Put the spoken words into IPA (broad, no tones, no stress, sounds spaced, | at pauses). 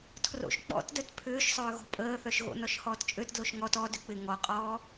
tʰ r o̰ ʃ k͡p ɔ̰ t d œ t pʰ ʏː ʃ sˤ ʏː ɣ ɔ̤ pʼ əː θ œ ʃ ɣ o̰ n ɔ ʃ h ɔː t t͡ʃʼ ø t d l o ʃ ŋ ɔ t ɔ d ʏ k͡p ɪ ŋ ɔ qʼ ɔː